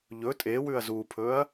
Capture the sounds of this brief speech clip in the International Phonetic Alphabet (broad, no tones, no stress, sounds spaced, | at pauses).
ʎ ɵ tʼ e w ʉ ɐ̯ z u pʰ ɵ ɐ̯